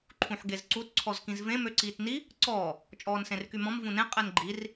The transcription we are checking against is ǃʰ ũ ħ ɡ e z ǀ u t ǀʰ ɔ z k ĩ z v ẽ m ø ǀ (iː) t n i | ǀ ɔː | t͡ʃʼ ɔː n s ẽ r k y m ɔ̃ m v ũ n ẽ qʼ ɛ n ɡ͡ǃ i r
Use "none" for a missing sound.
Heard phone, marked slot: iː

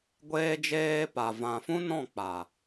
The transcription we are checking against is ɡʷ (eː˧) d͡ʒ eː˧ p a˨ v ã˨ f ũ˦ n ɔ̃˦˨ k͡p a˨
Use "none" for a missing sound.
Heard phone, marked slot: eː˧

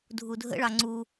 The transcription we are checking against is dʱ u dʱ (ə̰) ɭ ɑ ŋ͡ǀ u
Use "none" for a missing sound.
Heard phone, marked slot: ə̰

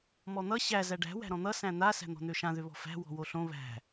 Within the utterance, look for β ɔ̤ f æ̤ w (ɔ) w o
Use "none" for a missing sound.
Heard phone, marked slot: ɔ̤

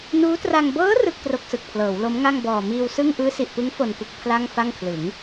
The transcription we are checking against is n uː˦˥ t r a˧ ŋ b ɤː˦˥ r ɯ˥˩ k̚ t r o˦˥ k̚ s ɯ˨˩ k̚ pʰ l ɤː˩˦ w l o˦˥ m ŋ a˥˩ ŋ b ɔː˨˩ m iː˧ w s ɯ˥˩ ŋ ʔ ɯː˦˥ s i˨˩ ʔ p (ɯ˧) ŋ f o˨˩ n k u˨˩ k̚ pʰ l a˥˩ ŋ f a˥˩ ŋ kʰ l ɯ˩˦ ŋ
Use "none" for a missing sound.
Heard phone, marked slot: ɯ˦˥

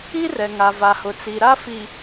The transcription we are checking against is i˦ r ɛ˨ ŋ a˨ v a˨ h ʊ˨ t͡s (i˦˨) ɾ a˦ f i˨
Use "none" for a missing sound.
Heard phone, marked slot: i˨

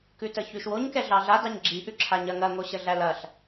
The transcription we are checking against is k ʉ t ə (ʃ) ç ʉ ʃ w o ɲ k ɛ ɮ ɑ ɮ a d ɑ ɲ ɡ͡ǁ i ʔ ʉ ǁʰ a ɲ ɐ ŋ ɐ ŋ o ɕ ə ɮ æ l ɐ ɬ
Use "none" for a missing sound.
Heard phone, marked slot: none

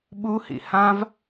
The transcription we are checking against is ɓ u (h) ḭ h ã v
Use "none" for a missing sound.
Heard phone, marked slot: h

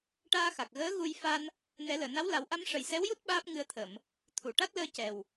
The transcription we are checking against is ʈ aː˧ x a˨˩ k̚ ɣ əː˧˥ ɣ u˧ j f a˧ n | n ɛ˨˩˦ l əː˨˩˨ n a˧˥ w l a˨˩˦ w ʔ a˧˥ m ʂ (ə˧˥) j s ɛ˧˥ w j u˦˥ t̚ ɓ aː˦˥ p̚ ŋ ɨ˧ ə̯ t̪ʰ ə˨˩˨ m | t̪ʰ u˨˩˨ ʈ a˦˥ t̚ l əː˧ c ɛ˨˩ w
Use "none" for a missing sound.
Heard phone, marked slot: ə˨˩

